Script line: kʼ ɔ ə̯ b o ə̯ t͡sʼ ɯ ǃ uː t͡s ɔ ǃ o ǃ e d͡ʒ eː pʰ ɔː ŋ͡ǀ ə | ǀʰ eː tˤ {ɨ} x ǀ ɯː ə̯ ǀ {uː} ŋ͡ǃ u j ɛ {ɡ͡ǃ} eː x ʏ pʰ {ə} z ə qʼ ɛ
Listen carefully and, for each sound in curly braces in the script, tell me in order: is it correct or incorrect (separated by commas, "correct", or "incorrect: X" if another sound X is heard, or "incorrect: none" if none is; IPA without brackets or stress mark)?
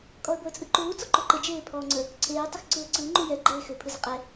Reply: incorrect: ʏ, incorrect: ɯː, correct, incorrect: ɯ